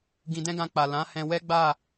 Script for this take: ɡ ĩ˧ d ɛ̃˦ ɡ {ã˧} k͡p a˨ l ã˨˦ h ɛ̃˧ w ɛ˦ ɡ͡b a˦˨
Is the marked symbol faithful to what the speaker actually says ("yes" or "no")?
yes